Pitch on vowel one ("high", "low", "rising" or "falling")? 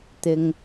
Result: high